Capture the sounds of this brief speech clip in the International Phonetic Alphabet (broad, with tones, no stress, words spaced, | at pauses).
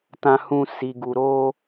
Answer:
tã˦hũ˦ si˧ɡu˧ɾo˦